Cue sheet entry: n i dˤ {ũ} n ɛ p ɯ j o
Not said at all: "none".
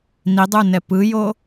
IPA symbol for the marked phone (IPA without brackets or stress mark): u